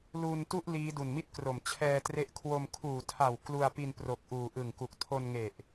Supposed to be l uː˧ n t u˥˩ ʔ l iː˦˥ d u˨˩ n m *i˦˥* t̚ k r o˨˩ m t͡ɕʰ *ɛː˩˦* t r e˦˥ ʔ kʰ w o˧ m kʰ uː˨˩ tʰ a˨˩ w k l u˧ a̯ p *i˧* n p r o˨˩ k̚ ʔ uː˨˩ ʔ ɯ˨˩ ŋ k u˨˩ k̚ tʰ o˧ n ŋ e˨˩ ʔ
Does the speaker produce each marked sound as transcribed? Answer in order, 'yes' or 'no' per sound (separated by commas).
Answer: no, no, yes